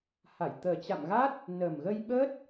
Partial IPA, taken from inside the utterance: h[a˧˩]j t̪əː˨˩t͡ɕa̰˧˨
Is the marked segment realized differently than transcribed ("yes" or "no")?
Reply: no